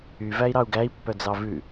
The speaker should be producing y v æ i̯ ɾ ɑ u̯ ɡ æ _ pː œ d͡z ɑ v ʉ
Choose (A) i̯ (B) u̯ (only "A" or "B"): A